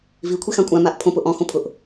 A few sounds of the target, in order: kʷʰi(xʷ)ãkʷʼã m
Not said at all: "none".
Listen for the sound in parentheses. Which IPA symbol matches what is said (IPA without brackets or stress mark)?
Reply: x